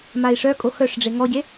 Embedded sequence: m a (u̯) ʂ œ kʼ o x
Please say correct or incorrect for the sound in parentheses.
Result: incorrect: i̯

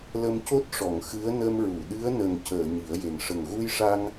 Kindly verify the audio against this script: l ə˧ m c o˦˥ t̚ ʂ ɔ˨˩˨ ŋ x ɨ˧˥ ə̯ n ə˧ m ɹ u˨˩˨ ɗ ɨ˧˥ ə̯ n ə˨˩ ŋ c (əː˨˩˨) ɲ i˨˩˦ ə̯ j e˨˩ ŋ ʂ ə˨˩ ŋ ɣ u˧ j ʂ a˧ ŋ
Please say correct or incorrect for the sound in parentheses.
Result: correct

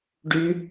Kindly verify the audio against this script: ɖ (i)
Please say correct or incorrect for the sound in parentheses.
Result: incorrect: y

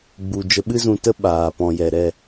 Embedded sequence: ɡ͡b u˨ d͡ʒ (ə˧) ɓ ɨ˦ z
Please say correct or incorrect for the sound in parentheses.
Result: correct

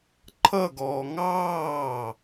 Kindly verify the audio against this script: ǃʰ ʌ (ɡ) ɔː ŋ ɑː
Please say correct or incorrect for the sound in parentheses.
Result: correct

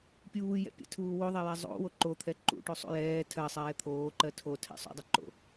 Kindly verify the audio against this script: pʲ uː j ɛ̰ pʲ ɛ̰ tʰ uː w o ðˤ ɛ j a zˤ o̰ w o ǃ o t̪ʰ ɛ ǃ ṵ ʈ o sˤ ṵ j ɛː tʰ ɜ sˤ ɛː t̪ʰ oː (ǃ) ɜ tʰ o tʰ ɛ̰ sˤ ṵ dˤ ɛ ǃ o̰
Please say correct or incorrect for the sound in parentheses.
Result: correct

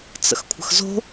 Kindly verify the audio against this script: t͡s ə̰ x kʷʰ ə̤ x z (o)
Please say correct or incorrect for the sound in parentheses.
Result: incorrect: o̤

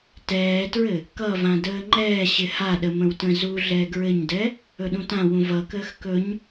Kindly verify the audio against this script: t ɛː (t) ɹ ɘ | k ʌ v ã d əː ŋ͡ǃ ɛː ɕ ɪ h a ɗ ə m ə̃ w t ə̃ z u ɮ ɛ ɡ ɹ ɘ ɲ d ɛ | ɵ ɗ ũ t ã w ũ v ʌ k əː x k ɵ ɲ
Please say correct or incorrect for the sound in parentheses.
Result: correct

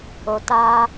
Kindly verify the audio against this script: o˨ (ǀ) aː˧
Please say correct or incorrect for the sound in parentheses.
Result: incorrect: t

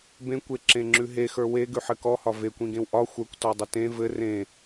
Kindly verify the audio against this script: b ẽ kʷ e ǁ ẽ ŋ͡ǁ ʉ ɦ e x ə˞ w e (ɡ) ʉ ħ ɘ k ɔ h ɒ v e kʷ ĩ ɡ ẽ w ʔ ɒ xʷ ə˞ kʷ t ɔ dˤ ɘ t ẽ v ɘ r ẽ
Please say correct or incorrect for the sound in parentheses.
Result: correct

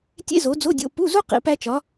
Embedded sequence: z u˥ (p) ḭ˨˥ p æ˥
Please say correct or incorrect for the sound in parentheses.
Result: incorrect: q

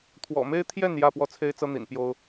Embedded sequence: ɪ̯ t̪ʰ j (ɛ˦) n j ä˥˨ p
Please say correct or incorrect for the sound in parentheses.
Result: incorrect: ɛ˥˨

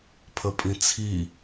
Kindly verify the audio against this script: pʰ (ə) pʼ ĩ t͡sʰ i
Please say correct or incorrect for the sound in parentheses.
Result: correct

